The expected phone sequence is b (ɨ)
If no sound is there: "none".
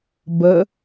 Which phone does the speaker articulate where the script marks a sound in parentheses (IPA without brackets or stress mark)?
ə